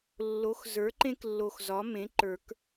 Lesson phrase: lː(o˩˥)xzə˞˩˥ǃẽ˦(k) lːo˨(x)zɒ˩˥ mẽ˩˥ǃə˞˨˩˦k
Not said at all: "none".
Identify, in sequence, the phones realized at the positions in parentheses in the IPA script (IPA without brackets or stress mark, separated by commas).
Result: o˩˥, k, x